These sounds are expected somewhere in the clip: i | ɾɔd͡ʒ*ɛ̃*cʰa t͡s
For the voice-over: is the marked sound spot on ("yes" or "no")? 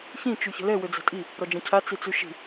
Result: yes